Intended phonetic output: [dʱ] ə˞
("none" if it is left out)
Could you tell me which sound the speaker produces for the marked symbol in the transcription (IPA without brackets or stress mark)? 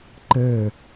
ǃ